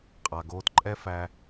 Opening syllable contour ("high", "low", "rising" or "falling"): low